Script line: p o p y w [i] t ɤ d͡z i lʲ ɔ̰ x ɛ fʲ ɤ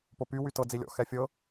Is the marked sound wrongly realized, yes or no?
yes